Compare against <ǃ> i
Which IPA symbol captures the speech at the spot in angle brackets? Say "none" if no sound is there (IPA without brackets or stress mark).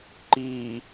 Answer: ǃ